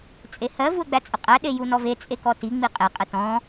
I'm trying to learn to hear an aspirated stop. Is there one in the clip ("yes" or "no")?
no